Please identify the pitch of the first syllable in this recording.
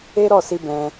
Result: high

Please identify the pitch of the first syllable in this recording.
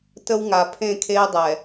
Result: high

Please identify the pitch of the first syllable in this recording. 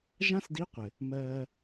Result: high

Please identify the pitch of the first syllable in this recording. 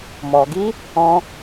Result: low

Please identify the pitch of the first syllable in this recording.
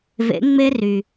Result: rising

